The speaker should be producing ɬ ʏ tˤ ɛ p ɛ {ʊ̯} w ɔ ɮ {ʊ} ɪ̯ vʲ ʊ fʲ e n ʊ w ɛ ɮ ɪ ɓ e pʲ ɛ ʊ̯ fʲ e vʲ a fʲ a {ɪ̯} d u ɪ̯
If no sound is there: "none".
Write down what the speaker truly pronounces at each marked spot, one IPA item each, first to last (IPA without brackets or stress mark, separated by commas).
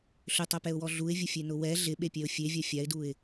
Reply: ʊ̯, u, ɪ̯